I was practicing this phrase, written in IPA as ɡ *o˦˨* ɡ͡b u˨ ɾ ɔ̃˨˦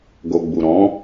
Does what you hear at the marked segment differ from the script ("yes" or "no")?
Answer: yes